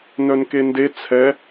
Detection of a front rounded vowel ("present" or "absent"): present